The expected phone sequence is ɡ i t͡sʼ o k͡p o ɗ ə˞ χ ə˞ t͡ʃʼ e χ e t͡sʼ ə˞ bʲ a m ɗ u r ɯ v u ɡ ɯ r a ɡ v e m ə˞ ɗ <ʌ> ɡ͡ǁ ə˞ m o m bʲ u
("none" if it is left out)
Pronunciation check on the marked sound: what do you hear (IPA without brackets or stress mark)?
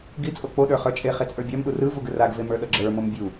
ʌ